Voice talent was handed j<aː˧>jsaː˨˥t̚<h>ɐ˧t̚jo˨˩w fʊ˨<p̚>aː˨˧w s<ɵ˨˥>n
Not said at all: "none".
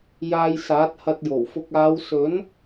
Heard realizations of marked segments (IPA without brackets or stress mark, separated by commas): aː˧, h, k̚, ɵ˨˥